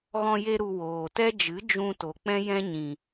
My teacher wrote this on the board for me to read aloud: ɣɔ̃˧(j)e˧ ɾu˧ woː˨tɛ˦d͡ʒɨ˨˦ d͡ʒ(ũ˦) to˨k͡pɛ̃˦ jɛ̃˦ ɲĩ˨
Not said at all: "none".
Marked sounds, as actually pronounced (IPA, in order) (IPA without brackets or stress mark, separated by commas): j, ũ˧